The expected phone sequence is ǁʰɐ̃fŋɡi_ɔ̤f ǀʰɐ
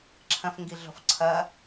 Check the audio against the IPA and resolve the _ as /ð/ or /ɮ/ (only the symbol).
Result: ɮ